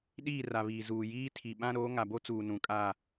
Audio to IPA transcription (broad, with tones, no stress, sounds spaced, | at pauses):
ɗ iː˦˨ r a˨ β iː˨ z uː˨ j iː˦ tʰ i˨ ɓ ã˦ ɾ oː˨˦ ŋ a˨ b o˦ t͡s uː˨ n ũ˨ kʼ aː˦˨